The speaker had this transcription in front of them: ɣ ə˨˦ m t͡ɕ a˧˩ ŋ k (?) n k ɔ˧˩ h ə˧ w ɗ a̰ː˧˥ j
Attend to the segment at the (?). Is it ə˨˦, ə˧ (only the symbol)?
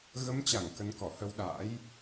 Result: ə˨˦